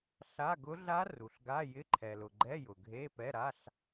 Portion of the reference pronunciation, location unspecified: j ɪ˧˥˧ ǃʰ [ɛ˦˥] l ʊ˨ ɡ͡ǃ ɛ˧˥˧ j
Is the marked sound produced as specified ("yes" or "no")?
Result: no